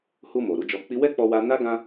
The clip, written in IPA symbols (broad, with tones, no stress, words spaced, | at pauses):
hu˧ mo˨ɾu˨˦d͡ʒɔ˧k͡pi˦ wɛ˦k͡pɔ˧wa˧ na˦ ɡã˦